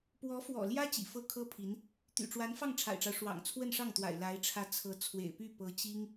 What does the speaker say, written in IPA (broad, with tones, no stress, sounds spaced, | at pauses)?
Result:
p w ɔ˧˥ f w ɔ̰˨˩ l j ä˥ t͡ɕ ḭ˨˩ f ɤ˥ kʰ ɤ˥ pʰ i˧˥ n | t̪ y̰˨˩ ʈ͡ʂ w a˧˥ n f ɑ˥˩ ŋ ʈ͡ʂʰ a̰˨˩ ɪ̯ ʈ͡ʂ ɑ˦ ʊ̯ ʂ w ɑ̰˨˩ ŋ t͡sʰ w ə˥˧ n ʂ ɑ˥˩ ŋ t̪ w a̰˨˩ ɪ̯ l a˧˥ ɪ̯ ʈ͡ʂʰ ä˧˥ t͡sʰ ɤ˧˥ t͡sʰ w ḛ˨˩ ɪ̯ p y˥˩ p ɤ˧˥ t͡ɕ i˥ ŋ